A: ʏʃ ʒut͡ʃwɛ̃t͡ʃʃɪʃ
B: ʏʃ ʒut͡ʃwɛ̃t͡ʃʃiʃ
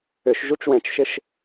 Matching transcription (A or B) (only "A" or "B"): A